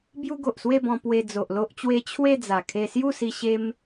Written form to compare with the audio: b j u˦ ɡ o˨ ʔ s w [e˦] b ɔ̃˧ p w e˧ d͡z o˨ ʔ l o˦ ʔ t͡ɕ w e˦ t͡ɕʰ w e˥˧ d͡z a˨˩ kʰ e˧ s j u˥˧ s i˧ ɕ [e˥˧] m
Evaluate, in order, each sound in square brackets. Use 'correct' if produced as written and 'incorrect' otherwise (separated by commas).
incorrect, incorrect